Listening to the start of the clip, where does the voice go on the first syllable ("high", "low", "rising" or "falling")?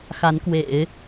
rising